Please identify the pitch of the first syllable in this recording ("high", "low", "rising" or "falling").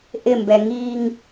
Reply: falling